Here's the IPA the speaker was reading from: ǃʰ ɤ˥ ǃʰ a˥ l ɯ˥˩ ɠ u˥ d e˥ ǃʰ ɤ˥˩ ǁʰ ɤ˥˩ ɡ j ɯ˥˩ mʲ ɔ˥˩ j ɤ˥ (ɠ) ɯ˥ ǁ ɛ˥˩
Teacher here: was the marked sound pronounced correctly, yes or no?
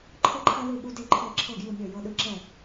no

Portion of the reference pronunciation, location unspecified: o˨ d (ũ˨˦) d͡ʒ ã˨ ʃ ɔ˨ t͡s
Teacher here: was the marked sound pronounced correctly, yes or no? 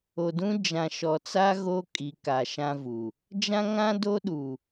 no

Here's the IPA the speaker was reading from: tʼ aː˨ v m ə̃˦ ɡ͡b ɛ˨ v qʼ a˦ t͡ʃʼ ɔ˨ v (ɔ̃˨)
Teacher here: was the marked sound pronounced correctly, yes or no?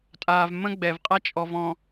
yes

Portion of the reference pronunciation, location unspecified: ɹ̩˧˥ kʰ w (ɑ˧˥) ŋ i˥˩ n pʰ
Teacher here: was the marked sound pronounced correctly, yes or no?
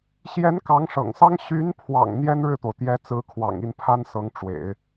no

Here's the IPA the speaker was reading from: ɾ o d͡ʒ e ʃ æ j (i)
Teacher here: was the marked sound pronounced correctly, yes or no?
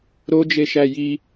yes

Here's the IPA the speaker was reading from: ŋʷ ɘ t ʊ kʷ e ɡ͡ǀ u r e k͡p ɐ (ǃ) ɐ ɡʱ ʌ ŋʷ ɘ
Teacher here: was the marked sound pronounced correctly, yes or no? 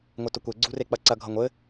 no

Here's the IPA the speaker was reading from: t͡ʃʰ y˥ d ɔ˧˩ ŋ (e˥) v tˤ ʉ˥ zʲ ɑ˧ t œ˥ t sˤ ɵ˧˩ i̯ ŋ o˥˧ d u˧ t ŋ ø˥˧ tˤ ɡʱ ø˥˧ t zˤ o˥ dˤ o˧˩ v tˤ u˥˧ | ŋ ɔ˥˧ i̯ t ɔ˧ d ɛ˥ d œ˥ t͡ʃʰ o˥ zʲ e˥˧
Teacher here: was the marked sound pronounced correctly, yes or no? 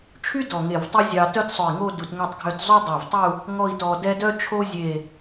no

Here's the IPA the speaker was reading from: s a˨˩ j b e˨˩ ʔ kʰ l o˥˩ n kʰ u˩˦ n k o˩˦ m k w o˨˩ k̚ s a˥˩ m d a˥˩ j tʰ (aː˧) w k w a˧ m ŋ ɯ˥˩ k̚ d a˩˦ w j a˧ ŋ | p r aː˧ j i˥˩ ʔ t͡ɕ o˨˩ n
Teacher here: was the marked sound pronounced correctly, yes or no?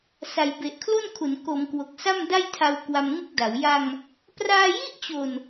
no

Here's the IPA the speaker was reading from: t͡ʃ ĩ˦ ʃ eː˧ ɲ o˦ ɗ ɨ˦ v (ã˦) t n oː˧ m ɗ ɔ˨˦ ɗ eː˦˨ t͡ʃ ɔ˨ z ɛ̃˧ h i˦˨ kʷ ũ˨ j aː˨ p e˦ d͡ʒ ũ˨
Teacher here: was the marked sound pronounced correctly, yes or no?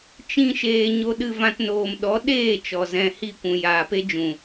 yes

